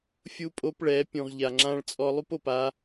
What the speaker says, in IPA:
fʲ u˦ pʼ o˦ p ɭ ɛ˨˦ pʲ ũ˨ ʁ ʎ a˨ ŋ͡ǁ ã˦ ɭ t͡sʼ ɔ˦ lˠ u˦ p o˨ p a˦

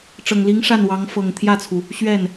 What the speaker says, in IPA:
ʈ͡ʂ ɤ˨˩ ŋ l i˧˥ ŋ ʂ a˥˩ n w ɑ˧˥ ŋ f ɤ˨˩ ŋ t̪ʰ j ä˥˩ t͡sʰ u˩ | ɕ ɥ ɛ˥˩ n

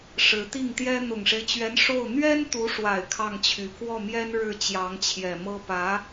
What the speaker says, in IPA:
ʂ ɻ̩˧˥ t̪ i˥˩ ŋ t̪ j ɛ˥ n̪ ʊ˨˩ ŋ ʂ e˦ ɪ̯ t͡ɕ ɥ ɛ˧˥ n ʂ o˥˩ ʊ̯ n̪ ɥ ɛ˥ n t̪ u˧˥ ʂ w a˨˩ ɪ̯ kʰ ɑ˥˩ ŋ t͡ɕʰ y˧˥ k w ɔ˥˩ m j ɛ˥ n ɻ ɻ̩˥˩ t͡ɕ j ɑ˧˥ ŋ t͡ɕʰ j ɛ˨˩ m ɤ˥ p ä˧˥

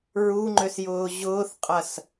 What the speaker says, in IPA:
ɹ u ŋ͡ǃ ø s j ʊː ʑ ʊː θ qʼ ɐ s

